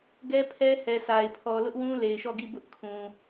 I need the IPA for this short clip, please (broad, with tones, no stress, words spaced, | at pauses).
ɡɛ˦pʰɛ˦hɛ˨sʰa˨ɪ̯ pʰɔ˨lʊ˦ʔwũ˦ le˨ɪ̯ʃɔ˦˨ɡi˦˨ bʊ˦ʔkʰũ˨